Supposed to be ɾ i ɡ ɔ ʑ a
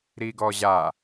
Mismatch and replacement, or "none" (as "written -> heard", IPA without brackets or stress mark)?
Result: none